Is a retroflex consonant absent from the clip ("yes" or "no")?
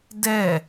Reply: yes